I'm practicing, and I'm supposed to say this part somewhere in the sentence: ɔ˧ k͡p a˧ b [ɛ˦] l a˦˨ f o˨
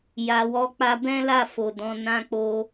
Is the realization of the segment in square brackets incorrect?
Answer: yes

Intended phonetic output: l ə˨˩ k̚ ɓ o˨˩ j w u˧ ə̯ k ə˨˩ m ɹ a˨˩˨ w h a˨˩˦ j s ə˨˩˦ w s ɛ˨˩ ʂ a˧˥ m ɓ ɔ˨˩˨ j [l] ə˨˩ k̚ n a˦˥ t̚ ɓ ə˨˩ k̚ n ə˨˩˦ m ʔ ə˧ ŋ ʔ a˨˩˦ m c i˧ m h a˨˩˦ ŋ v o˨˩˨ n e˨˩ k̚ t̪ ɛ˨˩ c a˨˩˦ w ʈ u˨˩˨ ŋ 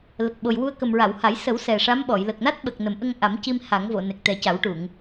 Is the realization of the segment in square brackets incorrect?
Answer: no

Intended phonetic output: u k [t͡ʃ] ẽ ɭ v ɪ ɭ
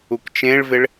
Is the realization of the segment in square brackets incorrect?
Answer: no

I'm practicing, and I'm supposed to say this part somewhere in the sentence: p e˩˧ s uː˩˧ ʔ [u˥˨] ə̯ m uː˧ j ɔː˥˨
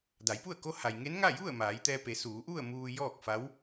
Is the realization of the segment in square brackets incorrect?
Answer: no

